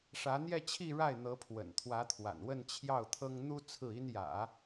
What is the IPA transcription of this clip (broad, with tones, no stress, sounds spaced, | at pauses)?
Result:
ʂ ä˧˥ n̪ j ɛ˥˧ t͡ɕʰ i˥˧ ɻ a˥˩ ɪ̯ n̪ ɤ˧˥ pʰ w ə̰˨˩ n t̪ʰ w ä˧˥ t̪ʰ w a̰˨˩ n w ə˥˧ n t͡ɕʰ j ɑ˥˩ ʊ̯ t̪ʰ ɤ˥ ŋ n̪ u˥ t͡sʰ ɹ̩˥˩ i˥ n j ä̰˨˩˦